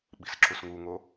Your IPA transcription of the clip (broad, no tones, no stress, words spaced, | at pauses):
ɓi̤sǁusŋuŋo